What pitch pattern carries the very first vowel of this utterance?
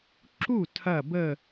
falling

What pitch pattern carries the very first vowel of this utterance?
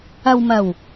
low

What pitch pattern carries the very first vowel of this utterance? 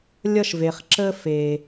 high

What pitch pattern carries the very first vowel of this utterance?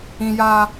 high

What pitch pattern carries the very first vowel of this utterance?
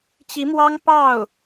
rising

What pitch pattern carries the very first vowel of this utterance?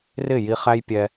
falling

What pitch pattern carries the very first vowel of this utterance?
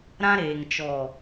high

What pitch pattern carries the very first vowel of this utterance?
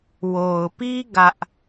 low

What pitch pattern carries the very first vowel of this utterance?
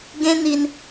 high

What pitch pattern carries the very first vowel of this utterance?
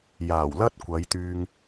low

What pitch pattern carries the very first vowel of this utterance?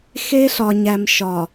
high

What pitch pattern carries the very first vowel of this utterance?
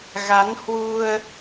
rising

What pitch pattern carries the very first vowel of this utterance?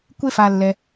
high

